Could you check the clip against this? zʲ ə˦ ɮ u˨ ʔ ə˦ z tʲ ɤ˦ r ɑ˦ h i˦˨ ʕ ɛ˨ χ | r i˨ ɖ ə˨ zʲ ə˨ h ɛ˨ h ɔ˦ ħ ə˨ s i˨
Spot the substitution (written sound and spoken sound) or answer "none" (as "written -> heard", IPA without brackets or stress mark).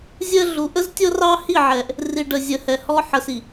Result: χ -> ʔ